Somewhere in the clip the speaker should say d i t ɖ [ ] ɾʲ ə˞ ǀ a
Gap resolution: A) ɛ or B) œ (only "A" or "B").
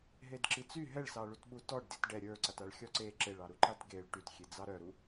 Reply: A